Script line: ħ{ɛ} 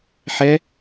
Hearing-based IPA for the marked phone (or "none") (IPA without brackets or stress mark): ɛ